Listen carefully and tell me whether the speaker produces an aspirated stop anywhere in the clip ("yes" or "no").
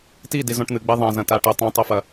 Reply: no